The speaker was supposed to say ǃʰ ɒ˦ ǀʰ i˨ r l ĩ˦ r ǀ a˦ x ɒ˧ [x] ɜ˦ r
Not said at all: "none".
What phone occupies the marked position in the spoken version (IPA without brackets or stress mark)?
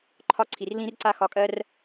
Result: kʼ